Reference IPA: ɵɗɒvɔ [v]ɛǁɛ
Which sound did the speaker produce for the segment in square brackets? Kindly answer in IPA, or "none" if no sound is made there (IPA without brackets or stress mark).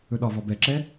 b